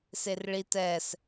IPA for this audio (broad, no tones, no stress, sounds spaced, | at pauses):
s e r ɭ i t ɛ s